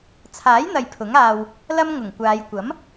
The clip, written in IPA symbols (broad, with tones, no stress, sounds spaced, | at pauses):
t͡sʰ aː˨˥ j n̪ ɐ˨ j pʰ ʊ˨˥ ŋ aː˧ w | l ɐ˥ m ŋ ʊ˨˩ ŋ kʷ aː˨˧ j kʷ ɐ˨˥ m